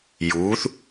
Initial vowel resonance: oral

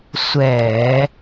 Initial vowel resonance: oral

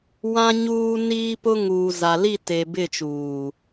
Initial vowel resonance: nasal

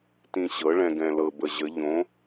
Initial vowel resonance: nasal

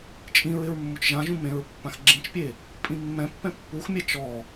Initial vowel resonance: nasal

